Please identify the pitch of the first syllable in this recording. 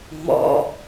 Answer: low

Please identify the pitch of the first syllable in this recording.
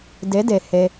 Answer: rising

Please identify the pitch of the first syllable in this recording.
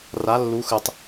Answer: rising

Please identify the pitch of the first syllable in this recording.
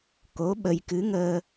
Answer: rising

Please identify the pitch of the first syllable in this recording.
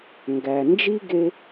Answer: low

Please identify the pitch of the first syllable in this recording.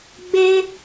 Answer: high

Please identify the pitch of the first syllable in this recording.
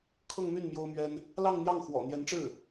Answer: falling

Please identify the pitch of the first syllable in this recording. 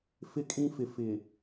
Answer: high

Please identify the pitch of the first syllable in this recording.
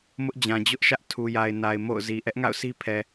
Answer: high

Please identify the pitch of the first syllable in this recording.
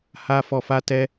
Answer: high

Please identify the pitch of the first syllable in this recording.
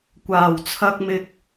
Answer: low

